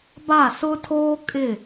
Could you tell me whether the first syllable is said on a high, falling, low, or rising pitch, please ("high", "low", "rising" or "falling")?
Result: falling